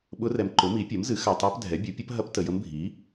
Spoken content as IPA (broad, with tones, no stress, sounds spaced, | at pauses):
ɓ ʊ˧˥ r ɛ˨ m ǃ ʊ˩˥ m i˩˥ pʲ ɐ˩˥ m z ɨ˩˥ x a˨ tˤ a˧˥ p dʱ ɛ˩˥ bʲ u˩˥ pʲ ə˧˥ p ɦ ɐ˧˥ p t ə˨ j ə˧˥ m bʱ i˩˥